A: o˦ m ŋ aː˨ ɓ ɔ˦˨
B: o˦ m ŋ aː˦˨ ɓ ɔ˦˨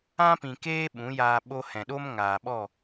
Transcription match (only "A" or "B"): A